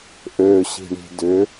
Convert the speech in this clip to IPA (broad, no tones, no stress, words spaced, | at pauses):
ʔøɕi̤ɳi̤ dʏ